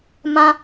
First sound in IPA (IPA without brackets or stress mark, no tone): m